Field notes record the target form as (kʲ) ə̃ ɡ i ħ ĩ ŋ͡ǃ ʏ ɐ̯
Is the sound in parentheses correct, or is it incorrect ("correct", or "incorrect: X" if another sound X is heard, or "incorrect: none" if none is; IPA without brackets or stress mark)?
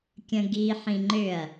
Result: correct